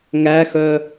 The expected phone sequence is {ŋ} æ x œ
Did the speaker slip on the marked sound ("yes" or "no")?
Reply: no